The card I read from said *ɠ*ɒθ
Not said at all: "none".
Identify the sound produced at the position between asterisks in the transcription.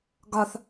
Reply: ɡ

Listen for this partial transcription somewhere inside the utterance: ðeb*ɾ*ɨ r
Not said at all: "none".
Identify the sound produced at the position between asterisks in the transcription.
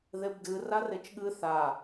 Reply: d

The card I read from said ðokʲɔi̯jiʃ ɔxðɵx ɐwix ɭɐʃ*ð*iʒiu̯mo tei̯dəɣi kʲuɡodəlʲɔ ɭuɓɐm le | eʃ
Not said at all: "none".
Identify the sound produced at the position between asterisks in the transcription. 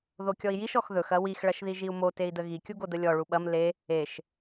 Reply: ð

